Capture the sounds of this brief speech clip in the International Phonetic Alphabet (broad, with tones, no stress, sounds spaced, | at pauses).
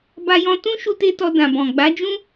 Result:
b a˧ j ɔ̃˧ t ũ˦ ʃ u˦ t e˦ t ɔ˧ d ã˨ b ɔ̃˨ ɡ͡b a˨˦ d͡ʒ ũ˦